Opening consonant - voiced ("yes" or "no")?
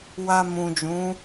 yes